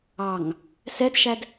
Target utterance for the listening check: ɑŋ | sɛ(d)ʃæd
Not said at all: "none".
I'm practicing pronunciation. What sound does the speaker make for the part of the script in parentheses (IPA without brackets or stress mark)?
d